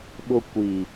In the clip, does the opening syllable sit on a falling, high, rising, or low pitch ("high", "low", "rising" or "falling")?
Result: high